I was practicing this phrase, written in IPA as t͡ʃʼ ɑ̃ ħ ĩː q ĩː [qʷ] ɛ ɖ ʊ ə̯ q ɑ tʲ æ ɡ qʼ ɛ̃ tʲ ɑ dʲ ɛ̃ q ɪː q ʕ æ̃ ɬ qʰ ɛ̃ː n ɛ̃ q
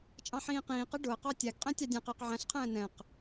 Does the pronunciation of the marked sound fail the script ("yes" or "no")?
yes